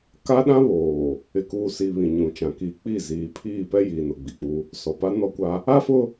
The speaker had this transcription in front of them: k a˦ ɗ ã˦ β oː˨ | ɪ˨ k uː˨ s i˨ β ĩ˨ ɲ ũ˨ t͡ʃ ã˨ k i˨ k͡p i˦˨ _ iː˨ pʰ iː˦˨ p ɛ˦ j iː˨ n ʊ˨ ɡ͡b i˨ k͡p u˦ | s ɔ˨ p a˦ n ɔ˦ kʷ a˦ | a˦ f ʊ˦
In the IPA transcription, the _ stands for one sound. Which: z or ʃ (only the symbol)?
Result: z